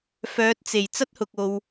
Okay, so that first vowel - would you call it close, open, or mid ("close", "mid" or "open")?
mid